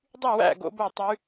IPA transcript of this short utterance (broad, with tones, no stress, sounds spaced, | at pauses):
dˤ y˥˨ w æ̰˥˨ ɡ o̰˦˥ b o˥˨ tˤ y˦˥